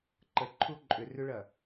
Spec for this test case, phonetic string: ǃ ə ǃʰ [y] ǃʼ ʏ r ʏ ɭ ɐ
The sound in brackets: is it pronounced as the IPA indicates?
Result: no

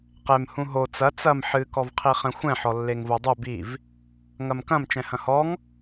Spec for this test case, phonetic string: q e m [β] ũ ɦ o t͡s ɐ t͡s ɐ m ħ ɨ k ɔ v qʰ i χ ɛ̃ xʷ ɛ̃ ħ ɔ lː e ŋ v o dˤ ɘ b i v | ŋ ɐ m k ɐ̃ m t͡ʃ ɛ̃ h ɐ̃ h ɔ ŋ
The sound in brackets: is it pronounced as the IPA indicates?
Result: no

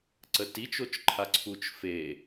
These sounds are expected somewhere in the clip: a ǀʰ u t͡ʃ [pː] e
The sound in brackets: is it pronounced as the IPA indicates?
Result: no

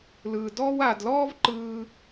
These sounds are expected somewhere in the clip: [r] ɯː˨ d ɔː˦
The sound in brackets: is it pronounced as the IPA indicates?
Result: no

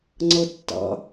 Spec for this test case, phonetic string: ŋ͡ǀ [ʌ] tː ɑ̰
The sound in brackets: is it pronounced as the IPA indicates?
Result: yes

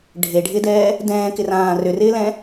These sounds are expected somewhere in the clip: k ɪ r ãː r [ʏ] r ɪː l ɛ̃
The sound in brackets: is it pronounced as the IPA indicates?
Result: yes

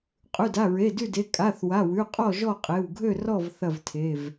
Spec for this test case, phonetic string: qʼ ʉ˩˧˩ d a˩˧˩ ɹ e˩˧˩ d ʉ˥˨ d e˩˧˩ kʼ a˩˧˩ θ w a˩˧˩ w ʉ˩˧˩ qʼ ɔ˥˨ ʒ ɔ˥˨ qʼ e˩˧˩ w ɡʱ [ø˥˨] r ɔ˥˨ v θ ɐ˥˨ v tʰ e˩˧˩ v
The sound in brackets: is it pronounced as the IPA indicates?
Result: yes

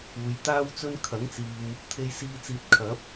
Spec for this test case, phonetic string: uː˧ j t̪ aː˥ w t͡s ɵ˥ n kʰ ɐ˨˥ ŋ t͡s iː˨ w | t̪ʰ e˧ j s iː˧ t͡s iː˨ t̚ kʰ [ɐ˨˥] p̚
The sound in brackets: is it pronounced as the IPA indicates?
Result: yes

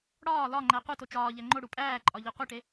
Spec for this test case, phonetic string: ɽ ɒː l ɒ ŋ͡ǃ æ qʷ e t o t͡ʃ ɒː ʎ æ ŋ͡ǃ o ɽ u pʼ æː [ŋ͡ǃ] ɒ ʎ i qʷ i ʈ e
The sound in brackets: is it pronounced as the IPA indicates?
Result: no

